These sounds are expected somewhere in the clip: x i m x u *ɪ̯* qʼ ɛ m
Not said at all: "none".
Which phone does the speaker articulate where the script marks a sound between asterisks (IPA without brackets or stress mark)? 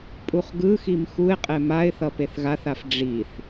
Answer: ɪ̯